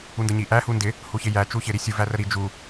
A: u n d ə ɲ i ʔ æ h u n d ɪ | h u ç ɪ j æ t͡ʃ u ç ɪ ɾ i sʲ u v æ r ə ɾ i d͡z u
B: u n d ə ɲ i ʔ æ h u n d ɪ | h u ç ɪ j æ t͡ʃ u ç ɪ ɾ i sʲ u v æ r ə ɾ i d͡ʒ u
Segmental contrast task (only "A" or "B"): B